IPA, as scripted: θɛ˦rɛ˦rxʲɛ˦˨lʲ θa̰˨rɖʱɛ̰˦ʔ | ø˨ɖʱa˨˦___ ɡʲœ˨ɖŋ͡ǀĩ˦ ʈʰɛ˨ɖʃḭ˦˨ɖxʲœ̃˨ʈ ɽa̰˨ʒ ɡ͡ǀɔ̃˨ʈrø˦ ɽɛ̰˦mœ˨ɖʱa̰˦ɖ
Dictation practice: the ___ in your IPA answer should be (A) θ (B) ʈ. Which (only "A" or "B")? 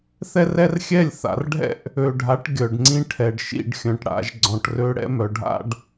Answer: B